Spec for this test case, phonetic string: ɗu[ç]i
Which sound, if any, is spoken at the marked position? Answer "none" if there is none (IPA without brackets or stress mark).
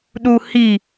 h